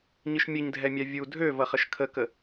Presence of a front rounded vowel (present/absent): present